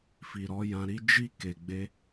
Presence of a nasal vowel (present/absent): present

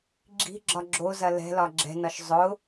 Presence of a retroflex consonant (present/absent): absent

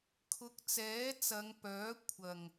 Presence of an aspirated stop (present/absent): present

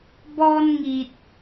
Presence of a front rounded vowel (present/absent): absent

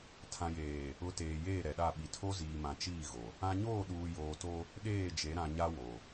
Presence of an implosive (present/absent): present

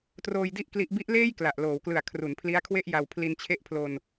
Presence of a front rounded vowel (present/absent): absent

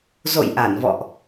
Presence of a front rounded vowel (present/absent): absent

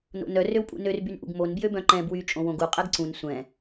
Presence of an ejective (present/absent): present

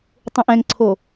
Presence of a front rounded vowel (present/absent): absent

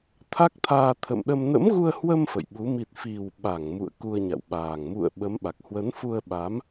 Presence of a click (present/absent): absent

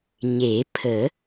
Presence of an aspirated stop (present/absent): present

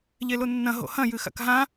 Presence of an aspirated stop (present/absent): absent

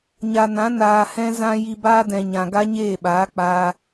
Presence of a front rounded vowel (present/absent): absent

